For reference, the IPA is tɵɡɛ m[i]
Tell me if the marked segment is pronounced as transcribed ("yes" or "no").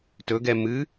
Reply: no